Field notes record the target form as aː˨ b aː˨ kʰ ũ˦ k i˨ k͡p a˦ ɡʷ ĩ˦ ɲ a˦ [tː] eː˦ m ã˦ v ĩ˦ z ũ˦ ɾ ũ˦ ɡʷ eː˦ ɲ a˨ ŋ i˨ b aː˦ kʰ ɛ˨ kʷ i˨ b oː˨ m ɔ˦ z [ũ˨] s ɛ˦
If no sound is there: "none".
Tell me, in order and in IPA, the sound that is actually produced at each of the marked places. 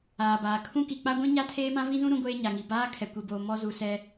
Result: tʰ, u˨

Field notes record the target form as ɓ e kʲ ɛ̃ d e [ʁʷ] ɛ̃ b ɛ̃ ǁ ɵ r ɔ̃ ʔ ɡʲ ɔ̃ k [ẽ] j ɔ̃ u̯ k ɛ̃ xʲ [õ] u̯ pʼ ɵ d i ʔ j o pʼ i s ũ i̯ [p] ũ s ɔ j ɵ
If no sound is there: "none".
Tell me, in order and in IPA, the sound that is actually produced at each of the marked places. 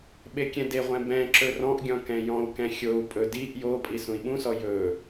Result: ʁʷ, ɛ̃, o, ɓ

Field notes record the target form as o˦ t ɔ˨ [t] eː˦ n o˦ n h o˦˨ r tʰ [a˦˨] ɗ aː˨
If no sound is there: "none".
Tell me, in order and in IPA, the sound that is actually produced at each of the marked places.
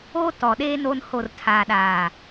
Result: ɗ, a˨

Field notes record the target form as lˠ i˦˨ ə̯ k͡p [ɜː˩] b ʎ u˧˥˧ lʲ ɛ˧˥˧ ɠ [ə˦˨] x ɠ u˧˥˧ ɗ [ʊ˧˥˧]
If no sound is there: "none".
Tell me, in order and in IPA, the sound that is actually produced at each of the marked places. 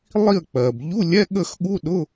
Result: ɜː˩, ə˦˨, ʊ˧˥˧

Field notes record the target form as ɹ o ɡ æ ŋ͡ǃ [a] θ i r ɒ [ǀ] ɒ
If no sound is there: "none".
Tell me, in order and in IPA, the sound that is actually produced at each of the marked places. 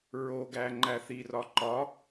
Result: æ, ǃ

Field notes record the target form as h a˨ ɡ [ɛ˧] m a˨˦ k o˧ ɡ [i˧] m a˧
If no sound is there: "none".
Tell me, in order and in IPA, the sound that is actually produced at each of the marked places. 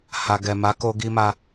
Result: ɛ˨, i˧

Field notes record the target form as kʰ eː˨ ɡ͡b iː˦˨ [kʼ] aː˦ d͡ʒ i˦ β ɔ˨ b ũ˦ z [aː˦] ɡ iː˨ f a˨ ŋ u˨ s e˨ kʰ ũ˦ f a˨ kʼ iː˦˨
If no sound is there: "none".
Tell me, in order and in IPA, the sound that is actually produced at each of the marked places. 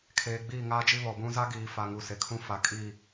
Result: ŋ, a˦

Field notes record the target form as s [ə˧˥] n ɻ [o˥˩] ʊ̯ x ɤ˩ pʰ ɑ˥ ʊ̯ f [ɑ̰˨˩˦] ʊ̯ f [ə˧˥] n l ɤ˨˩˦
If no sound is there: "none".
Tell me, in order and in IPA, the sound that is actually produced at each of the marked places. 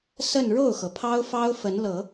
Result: ə˥˧, o˥˩, ɑ˥, ə˧˥

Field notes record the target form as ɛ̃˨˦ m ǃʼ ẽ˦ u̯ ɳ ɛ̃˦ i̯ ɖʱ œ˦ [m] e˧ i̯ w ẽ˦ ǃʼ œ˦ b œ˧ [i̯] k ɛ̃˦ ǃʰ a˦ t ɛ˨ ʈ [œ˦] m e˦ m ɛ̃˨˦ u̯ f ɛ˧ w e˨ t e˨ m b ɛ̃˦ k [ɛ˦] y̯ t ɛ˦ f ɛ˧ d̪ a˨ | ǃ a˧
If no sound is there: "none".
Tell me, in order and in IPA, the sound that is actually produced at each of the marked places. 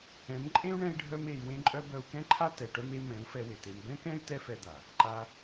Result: m, u̯, œ˦, ɛ̃˦

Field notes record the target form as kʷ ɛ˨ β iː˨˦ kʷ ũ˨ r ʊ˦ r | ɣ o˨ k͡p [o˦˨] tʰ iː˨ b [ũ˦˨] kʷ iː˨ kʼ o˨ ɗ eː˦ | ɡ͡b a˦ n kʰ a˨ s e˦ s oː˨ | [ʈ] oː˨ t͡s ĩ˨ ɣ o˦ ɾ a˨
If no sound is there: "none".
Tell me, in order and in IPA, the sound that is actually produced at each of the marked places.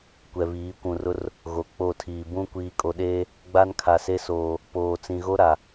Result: o˦˨, ũ˦, p

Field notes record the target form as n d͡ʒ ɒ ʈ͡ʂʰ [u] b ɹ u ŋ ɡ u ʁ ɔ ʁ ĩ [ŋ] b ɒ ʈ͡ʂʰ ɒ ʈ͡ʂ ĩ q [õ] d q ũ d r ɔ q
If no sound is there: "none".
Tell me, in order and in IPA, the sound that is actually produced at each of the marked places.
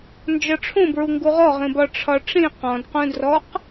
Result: ũ, none, ɔ̃

